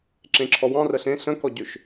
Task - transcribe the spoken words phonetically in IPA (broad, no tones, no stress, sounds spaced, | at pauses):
ǁ ẽ ǁʰ ɔ w ɑ̃ r ə ɬ ẽ ɬ ə̃ k ɔ ɟ ø ʃ